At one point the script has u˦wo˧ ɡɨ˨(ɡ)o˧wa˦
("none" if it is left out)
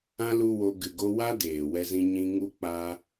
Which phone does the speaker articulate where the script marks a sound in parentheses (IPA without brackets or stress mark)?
ɡ